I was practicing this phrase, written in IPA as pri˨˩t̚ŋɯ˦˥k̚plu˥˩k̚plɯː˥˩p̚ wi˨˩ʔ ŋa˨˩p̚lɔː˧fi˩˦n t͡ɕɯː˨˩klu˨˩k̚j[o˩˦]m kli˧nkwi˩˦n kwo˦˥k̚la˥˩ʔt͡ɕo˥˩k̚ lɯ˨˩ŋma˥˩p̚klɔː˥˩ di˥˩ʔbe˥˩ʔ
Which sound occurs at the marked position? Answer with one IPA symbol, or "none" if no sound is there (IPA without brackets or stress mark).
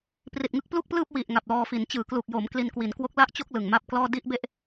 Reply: o˩˦